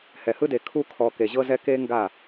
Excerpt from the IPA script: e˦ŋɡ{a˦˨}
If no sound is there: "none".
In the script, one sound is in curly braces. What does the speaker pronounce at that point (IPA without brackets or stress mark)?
a˦˨